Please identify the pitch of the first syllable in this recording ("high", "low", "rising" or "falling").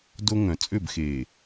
high